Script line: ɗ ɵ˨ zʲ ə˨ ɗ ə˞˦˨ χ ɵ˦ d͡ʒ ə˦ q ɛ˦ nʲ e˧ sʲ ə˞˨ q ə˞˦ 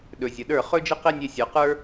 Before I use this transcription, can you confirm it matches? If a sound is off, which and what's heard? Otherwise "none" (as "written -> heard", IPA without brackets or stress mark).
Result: none